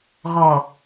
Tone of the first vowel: low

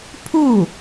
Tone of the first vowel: falling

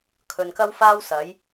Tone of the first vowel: low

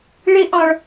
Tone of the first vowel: high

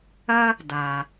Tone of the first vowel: high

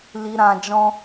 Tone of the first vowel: low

